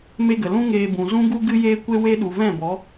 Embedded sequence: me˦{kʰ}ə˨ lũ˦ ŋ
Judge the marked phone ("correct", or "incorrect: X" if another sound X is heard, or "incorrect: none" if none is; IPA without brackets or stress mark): incorrect: ɡ